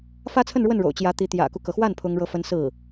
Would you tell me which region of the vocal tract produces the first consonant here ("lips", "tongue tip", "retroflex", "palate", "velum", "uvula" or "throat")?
lips